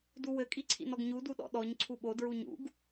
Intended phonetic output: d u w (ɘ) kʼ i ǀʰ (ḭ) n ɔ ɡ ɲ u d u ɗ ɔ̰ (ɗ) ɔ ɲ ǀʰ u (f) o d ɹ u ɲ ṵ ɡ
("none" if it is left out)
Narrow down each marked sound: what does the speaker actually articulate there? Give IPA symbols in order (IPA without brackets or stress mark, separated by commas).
ɘ, ḭ, ɗ, ɓ